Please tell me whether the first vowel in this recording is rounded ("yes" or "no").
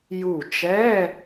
yes